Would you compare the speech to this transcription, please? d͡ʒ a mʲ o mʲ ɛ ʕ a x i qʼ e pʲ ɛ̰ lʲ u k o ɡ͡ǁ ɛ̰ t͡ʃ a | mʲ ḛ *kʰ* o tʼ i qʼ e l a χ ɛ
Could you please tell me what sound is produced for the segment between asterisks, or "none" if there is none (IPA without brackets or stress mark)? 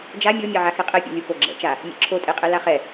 ǁʰ